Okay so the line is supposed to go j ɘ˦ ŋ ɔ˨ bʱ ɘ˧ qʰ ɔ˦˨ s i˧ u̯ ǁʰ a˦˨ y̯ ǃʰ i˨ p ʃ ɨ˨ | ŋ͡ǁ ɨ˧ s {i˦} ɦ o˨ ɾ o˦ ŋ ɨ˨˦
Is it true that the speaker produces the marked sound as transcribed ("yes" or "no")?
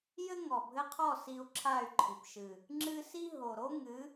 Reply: yes